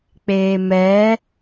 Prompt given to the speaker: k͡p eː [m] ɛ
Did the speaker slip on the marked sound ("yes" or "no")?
no